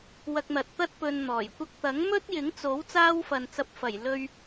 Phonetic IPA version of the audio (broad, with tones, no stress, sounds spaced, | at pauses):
w ɐ˧ k̚ n̪ ɐ˨ t̚ t̪ ɐ˥ t̚ p ɵ˧ n n̪ ɔː˨˩ j kʷ ɐ˥ k̚ t̪ ɐ˨˥ ŋ m ɵ˥ t̚ j ɪ˨˥ ŋ t͡s o˨˥ w t͡s aː˥ w f ɐ˨ n t͡s ɐ˧ p̚ f ɐ˨˩ j l ɵ˧ ɥ